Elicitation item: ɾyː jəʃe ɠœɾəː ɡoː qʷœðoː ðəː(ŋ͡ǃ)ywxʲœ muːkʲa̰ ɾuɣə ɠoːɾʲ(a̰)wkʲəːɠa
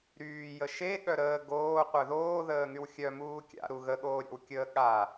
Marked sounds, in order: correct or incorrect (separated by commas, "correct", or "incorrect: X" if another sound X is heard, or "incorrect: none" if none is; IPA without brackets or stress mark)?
incorrect: ŋ, correct